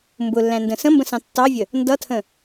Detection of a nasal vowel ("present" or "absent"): present